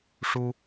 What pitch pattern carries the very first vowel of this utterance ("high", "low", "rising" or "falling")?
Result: high